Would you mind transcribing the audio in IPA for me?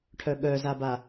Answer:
ʈʰœɠœzaba

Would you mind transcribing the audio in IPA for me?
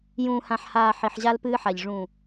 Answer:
jũː˨hã˨ħhaː˨ ħi˨ħʑa˦lpɨː˦ħa˨ʎ ʐũ˨

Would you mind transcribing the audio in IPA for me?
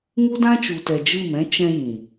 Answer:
ŋu˦dã˦t͡ʃu˨tɛ˨ d͡ʒɨ˦˨mɛ̃˦ t͡ʃɛ̃˧ jĩ˨

